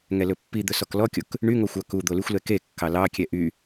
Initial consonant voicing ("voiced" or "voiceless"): voiced